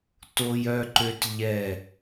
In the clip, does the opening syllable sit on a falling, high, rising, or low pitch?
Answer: high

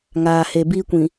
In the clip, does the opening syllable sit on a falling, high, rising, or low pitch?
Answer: low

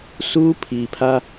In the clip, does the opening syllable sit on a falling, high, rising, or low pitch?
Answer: high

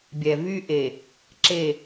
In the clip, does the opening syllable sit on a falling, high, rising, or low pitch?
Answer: low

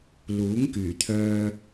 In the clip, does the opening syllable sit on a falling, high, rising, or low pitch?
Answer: rising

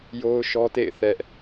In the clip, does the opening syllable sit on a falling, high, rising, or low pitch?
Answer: high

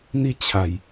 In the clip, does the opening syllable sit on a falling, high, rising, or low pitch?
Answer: falling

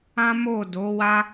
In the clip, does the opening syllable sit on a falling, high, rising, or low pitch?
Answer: high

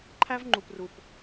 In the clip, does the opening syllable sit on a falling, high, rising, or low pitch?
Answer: high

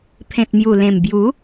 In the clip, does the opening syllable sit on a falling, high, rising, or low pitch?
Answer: low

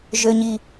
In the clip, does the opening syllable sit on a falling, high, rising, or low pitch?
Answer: high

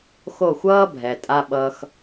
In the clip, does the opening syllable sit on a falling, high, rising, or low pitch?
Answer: falling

